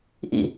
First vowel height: high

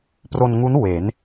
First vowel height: mid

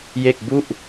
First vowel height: mid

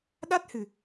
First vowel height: low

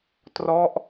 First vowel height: mid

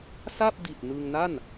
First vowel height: low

